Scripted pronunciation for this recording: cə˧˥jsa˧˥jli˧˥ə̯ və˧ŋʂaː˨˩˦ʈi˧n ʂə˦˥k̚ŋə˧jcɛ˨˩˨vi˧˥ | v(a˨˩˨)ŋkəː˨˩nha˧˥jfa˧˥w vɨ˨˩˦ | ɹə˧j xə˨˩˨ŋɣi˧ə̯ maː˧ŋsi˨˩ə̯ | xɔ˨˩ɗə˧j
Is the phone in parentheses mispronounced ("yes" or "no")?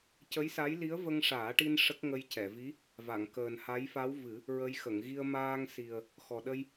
no